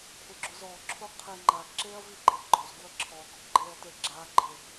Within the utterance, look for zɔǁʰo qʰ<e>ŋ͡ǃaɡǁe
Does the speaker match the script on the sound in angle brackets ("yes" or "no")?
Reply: yes